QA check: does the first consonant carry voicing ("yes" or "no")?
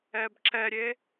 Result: yes